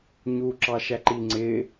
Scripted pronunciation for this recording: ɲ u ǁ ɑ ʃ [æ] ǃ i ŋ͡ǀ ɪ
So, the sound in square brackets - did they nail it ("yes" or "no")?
yes